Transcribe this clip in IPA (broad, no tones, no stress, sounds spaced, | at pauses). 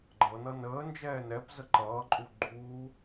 ɡ͡ǃ ɤ n ʌ n əː n d͡ʒ ɛː n ɛ p z ə ǃ ʌː ǃʼ u ɡ͡ǃ uː